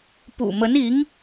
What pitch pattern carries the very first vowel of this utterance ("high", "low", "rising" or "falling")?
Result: low